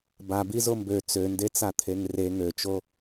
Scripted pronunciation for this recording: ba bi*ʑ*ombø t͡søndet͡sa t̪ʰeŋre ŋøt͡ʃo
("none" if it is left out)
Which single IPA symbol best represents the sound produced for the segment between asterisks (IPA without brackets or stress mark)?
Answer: z